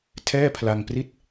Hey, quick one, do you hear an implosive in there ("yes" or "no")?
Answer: no